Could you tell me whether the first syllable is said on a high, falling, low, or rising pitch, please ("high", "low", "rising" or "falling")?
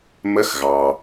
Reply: rising